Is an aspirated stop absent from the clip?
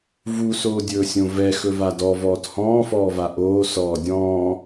yes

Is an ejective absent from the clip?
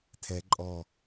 no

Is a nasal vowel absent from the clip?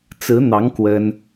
yes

